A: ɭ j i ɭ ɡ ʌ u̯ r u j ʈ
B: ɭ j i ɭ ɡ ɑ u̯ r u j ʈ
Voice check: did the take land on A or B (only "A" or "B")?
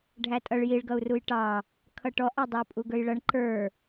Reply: A